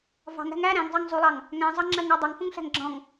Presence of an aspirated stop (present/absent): absent